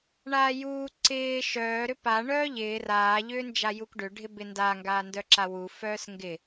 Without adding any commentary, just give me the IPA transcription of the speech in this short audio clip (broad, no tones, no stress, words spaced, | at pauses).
ɳaːjuː ǀɪː ʃœː ɾʏpa ɳœːʎɪː raː ʎʏːnd͡ʒajukɖʏ ɖʱɪbɪnda ŋɡaːndœǁawu fœːsŋɡɪ